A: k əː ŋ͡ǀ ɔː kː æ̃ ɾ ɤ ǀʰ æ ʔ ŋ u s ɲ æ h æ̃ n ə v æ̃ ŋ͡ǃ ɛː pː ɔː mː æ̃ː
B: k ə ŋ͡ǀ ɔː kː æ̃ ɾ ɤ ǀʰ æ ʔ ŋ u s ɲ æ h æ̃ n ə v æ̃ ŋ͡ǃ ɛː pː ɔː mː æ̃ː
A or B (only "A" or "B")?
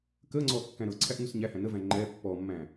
A